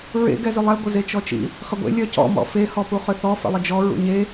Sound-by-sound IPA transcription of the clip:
ɹ ḛ ɡ ɛ z ʏ lˠ ɛ ɡʷ ə z e t͡ʃ ɔ t͡ʃ ḭ | χ ə ɡʷ ḛ lʲ œ c ɔ̰ m ɔ̰ f e h ɔ p u χ ʏ θ ɔ f ə̰ lˠ ə d͡ʒ ɔ ɹ ṵ ɲ e

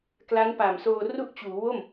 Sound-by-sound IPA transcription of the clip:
k l a˦˥ n p a˨˩ m s oː˧ r u˥˩ ʔ t͡ɕ uː˩˦ w o˥˩ m

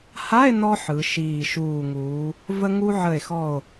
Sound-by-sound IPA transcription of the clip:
h a˧˥˧ e̯ n ɔ˧ ħ ɯ˩˧ ʃ iː˨˩ ʃ uː˨˩ ŋ uː˩˧ | v ə˧ ŋ u˧ ʕ ə˨˩ e̯ x ɔ˨˩ o̯

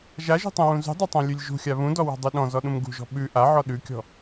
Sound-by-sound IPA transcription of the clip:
ʒ a ʒ ṳ tˤ ũ w ũ z ṳ dˤ a tˤ ã lʲ ʉ lʲ ʒ ṳ xʲ a β ũ d ɔ w ɔ̤ dˤ ʉ ɗ ɔ̃ z ɔ ɗ ũ m ɡ ṳ ʒ ɔ̤ ɓ ʉ ʔ a ʕ ɔ ɗ ʉ kʲ ɔ̤

